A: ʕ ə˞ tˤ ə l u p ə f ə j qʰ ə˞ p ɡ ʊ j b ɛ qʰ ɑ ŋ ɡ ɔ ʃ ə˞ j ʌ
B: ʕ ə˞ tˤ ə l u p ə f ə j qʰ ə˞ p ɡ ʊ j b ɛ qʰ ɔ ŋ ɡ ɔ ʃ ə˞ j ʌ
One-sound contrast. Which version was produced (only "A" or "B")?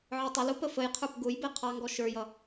A